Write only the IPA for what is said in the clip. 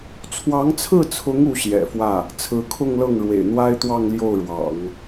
t͡sʰwɑ˧˥ŋt͡sʰɹ̩˥˩t͡sʰʊ˧˥ŋ u˧˥ɕjɛ̰˨˩fwä˥˩ | t͡sʰɹ̩˧˥kʰʊ˥˧ŋ lɤ˥˩ŋɻwḛ˨˩ɪ̯n̪wa˥ɪ̯t̪wɑ˥˧ŋ ljo˥˩ʊ̯ɻwɑ̰˨˩˦ŋ

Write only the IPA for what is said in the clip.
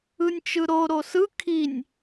ɯnʲt͡ʃɯɾo ɾosɯ kʰinʲ

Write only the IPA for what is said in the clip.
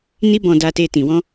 ni˦bɔ̃˧da˧te˧ tĩ˨wɔ̃˧

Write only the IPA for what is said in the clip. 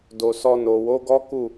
do˨sɔ˧no˨ wo˨˦ɡɔ˦ku˦˨

